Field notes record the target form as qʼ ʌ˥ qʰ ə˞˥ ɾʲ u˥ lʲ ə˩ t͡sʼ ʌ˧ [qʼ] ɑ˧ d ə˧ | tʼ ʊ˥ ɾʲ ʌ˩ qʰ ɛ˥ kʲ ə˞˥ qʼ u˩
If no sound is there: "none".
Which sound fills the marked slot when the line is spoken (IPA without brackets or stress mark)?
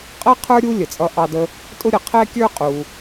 ʔ